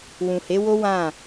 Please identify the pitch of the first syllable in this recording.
low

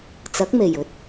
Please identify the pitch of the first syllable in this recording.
rising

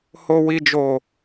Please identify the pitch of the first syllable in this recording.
low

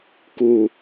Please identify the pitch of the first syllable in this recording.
low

